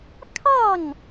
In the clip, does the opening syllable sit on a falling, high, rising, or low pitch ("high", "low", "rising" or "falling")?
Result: falling